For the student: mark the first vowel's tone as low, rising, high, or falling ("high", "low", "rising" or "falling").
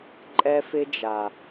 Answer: high